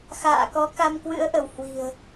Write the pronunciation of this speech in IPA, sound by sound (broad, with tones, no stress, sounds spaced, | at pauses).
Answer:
x a̰ː˧˨ k ɔ˨˦ k a˧ m k w ɨ̰˧˥ ə̯ ʔ ə˧˩ w h w i̤˨˩ ə̯